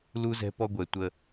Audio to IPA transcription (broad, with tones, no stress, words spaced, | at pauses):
lu˦ zɛ̤˦pɔ˦ɡʷɛ˨ tʷə˦